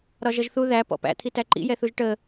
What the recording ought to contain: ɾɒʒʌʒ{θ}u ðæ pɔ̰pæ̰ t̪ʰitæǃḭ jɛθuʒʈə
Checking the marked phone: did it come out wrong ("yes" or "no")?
no